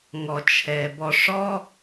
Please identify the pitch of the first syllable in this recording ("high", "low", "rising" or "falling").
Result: low